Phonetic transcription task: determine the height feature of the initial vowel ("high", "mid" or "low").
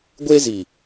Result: mid